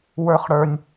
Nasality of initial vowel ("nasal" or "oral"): oral